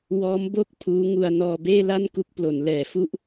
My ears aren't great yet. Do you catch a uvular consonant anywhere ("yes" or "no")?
no